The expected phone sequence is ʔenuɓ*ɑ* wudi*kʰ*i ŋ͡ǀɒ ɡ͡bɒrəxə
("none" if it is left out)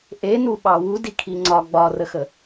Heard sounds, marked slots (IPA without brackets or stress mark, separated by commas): ɑ, kʰ